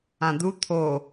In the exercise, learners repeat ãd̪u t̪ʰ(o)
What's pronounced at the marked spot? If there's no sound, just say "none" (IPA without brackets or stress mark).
o